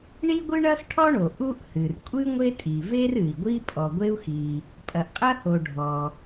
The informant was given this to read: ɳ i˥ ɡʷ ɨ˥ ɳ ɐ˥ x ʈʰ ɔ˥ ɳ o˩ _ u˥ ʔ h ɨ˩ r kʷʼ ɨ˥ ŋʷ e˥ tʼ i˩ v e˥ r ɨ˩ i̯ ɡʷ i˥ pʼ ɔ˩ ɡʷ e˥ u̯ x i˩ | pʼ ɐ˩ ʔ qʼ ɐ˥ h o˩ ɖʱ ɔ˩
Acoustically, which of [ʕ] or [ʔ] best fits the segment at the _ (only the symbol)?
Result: ʔ